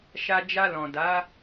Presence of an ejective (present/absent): absent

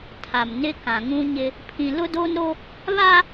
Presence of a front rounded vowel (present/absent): absent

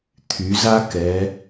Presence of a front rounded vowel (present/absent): present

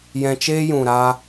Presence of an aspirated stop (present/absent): absent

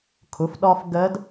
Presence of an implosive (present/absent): present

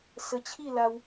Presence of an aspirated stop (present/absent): present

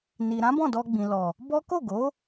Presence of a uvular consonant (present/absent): absent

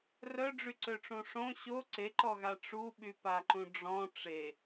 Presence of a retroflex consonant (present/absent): present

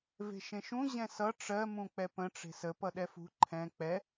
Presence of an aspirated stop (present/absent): present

